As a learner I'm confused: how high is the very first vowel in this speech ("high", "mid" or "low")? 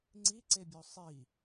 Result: high